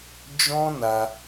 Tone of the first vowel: high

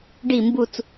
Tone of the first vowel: falling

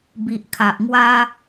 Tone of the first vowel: low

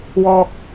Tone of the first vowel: low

